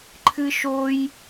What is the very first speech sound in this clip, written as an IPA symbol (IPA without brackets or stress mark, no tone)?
ǃʰ